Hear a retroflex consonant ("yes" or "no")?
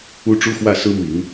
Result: yes